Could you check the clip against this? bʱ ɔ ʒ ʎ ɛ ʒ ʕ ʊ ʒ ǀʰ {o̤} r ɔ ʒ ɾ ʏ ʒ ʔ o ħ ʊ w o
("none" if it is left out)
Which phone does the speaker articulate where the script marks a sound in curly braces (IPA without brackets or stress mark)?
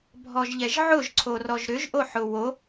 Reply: o